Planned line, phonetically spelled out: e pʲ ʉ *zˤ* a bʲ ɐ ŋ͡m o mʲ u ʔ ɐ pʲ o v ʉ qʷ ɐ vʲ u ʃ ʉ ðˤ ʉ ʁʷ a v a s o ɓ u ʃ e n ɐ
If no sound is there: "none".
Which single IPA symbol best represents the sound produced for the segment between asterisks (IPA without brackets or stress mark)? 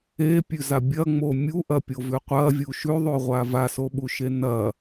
z